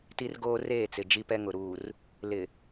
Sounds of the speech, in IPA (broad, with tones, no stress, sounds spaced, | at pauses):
t i˦ r ɡ oː˦ r eː˦˨ t͡s ɪ˨ d͡ʒ i˦ p ɛ˦ ŋ ʊ˨ ɾ uː˨ r | l ɪ˨